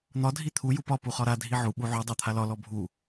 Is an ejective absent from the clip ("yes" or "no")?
yes